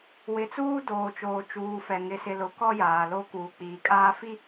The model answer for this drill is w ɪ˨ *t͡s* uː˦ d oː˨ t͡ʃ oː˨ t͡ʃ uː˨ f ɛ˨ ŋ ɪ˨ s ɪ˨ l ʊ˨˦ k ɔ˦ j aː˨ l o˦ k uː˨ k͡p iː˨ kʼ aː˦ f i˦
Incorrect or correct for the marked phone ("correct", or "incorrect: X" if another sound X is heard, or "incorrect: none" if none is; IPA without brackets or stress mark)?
correct